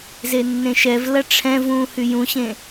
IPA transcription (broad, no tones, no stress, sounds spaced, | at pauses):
z e nː ẽ ʃ ɛ v l ɐ ʈ͡ʂʰ ɛ̃ v ũː h y j ũ ɕ ẽ